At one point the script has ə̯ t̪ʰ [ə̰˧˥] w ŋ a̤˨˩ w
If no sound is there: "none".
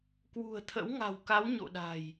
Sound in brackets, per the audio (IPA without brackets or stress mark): ə̰˧˥